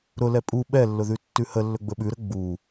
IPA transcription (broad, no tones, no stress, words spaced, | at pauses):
ɾʊlɛ pʼu ɓɛlːʊðʉ tːʉhə lːɵɡ͡bɵɓʉɾə ɡ͡bu